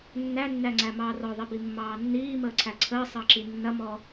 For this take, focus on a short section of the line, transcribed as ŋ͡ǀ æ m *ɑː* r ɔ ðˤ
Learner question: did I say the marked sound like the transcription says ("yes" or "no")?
yes